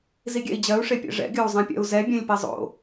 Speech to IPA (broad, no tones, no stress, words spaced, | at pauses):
ziɡʲɛ̰i̯d͡ʑɜu̯ ʂepʲɛ̰ʐɛ̰ ɡʲɵu̯zˤɛ̃pʲɛ̰u̯zɛ bʲɛ̃lʲpezˤo̰